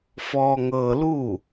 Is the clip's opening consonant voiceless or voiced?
voiceless